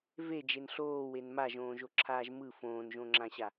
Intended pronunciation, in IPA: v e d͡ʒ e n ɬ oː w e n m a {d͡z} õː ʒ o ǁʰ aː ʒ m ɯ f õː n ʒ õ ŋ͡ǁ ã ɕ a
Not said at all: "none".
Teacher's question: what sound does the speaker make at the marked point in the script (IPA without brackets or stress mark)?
ʒ